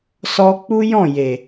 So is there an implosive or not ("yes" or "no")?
no